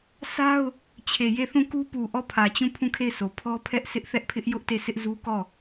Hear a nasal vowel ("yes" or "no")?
yes